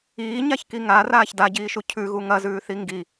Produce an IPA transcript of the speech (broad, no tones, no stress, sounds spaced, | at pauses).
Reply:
iː ɲ a ç k i ŋ a r aː ç d a ɟ iː ʃ u cʰ ʉ ɣ u ŋ ɐ z ʉː θ i ŋ ɡ i